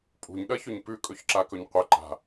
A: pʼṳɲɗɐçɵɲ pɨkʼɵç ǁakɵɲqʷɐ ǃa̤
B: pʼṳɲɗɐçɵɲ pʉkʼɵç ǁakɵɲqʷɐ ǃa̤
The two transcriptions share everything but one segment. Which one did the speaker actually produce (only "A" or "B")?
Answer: B